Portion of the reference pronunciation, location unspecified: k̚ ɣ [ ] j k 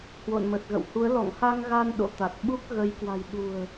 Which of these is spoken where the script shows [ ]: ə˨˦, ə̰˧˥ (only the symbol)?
ə˨˦